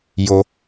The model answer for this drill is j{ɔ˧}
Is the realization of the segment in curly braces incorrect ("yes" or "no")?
yes